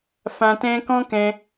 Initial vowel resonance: nasal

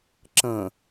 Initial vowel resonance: nasal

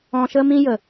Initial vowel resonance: nasal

